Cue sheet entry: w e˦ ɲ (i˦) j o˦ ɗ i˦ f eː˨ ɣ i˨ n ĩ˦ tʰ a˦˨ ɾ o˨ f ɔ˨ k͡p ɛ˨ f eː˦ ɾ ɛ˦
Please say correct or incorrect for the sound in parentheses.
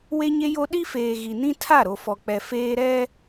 incorrect